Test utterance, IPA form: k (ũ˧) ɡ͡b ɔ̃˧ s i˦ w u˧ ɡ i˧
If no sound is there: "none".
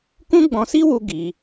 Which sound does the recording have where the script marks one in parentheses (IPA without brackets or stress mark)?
ũ˦